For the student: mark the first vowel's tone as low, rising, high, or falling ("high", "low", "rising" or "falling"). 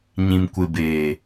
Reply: low